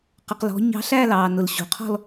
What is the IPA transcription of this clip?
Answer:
q ə˩ q l ɔ̤˩˧ ɲ ɑ̤˧ ɬ æ˥˧ l ɑː˩ n ʊ˩ l ɕ ṳ˩ qʰ ɔ̤˥˧ l

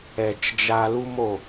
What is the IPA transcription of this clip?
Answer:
ɛ˨ t͡ʃ d͡ʒ a˧ l u˦ m o˦˨

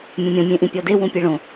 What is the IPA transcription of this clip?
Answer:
mʲ õ mʲ ɔ̃ mʲ ẽ ʔ ĩ pʲ ɔ d e w ũ pʲ e ɭ õ

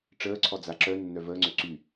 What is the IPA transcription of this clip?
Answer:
ʈ͡ʂ əː ǀʰ ɔ d͡z a ǁ œ nː œ v əː ŋ͡ǀ ø ǀ y

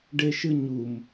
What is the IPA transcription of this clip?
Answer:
ɖ e ʃ ɨ ɲ u m

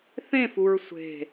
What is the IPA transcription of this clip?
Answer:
θ ẽ f u ɹ sʷ e̤

